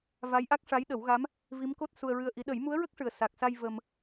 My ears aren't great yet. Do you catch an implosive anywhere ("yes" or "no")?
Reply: yes